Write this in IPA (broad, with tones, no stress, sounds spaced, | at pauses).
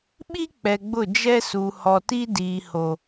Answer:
ɓ i˦ k͡p ɛ˨ ɡ͡b ʊ˦˨ d͡ʒ ɛ˦ s u˨ h ɔ˨ t i˦ d iː˨ h o˨